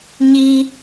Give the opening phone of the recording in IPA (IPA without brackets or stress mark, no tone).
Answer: ɲ